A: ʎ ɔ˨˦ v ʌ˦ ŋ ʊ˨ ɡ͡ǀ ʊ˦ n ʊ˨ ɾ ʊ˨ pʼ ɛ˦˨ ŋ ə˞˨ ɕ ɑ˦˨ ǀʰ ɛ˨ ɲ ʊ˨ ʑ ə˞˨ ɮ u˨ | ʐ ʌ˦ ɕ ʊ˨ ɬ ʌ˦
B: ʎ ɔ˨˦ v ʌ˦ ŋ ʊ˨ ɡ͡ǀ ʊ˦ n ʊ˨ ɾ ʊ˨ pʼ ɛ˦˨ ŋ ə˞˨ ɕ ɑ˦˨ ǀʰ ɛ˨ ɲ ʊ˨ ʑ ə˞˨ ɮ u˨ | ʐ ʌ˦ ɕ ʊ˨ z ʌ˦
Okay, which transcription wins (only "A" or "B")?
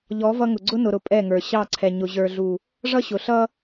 A